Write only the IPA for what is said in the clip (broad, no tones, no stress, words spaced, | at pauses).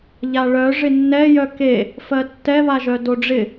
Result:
ʎaɭœ ʐɪnːɛjœ ke | fɜtːɛβaʒœ doɖ͡ʐɪ